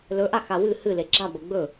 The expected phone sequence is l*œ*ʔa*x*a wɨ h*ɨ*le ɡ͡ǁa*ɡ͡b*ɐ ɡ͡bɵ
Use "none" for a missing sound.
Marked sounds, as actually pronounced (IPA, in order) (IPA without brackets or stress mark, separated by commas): ɵ, x, ɨ, b